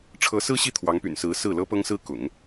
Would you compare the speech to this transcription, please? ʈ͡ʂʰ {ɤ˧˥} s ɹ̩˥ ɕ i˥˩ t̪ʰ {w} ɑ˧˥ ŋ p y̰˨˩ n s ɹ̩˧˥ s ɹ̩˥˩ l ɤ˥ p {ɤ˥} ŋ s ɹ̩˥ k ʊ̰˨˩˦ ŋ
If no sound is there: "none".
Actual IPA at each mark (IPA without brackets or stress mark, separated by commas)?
ɤ˧˥, w, ɤ˥